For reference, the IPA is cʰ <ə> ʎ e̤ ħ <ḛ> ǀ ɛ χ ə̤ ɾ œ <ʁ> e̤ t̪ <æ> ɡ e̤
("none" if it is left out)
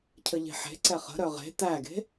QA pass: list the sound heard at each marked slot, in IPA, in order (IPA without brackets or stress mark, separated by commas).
ə, e̤, ʁ, æ